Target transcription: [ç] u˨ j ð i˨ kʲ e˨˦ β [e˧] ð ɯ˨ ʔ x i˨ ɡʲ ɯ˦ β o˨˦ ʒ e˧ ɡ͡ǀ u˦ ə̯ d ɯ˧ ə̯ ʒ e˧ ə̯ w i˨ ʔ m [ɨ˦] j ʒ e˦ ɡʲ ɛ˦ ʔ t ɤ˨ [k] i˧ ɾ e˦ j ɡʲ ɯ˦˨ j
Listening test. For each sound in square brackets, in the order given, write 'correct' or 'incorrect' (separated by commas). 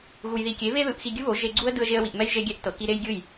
incorrect, correct, incorrect, correct